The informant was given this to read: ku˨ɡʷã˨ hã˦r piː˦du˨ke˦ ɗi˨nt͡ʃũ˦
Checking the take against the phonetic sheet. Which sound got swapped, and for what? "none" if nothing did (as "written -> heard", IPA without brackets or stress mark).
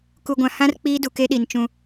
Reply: p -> k͡p